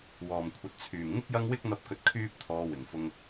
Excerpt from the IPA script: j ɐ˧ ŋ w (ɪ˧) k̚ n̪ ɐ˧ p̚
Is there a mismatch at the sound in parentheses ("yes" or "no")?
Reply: yes